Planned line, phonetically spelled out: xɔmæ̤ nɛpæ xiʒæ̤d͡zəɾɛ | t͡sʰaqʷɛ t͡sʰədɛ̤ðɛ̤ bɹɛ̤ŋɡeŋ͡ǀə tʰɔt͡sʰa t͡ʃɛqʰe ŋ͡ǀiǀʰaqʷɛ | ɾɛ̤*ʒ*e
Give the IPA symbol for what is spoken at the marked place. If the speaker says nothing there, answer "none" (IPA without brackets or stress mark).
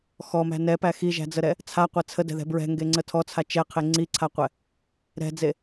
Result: d͡z